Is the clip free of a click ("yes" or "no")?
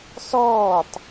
yes